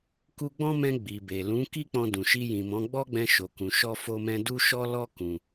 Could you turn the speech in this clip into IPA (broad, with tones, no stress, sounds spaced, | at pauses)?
k u˧ ɡ͡b ɔ̃˦ m ɛ̃˧ ɡ͡b i˨ b e˨ l ũ˨˦ k i˦ k͡p ɔ̃˧ d ũ˨ ʃ i˧ j ĩ˨ m ɔ̃˨˦ ɡ͡b ɔ˦ ɡ͡b ɛ̃˧ ʃ o˨ k ũ˨ ʃ ɔ˧ f o˧ m ɛ̃˧ d u˦ ʃ ɔ˦ l ɔ˦ k ũ˧